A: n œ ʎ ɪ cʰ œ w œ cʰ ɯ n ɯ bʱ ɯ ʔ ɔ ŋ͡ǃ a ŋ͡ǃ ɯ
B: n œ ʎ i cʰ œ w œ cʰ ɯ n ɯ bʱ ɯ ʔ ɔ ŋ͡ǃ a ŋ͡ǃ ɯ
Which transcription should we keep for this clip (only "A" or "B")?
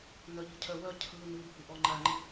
B